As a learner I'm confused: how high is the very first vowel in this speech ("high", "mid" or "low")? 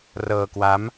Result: mid